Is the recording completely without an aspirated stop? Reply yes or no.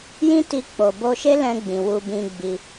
yes